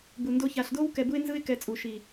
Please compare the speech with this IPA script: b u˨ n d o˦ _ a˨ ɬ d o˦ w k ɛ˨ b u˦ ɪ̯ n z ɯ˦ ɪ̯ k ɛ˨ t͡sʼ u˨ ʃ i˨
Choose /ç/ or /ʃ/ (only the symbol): ç